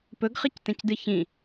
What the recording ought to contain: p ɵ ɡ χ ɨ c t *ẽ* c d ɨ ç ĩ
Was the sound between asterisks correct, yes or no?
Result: yes